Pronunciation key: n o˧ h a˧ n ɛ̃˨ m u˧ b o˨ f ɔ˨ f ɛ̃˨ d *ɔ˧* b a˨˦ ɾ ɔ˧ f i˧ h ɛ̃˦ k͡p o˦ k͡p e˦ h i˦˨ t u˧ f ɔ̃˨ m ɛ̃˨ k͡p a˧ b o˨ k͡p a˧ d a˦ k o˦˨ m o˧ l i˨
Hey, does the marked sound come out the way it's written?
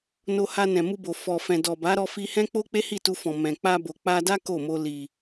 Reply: no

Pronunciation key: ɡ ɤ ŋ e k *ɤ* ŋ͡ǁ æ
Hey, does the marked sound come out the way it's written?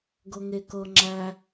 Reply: yes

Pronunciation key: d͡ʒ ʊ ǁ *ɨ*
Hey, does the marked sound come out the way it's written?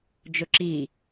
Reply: no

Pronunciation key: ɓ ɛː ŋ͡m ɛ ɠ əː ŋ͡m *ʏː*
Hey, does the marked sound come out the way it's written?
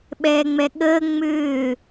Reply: yes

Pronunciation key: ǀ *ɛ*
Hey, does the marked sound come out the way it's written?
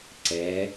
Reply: yes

